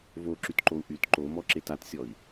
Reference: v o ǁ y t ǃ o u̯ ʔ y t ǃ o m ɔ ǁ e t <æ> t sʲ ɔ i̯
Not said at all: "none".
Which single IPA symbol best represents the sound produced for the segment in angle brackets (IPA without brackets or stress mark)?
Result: a